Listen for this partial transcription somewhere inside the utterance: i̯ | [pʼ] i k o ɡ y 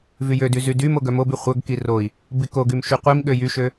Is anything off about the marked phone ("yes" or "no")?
yes